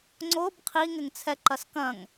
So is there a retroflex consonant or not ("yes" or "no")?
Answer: no